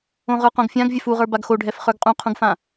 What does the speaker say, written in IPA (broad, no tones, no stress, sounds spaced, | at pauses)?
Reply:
õ ʁ ə˞ q õ ɡ fʲ ã ɡ vʲ ɛ f u ʁ ə˞ b a ɡ x o ɖʱ ɛ f χ ə˞ ɡ qʼ ũ qʰ ũ ɡ f ã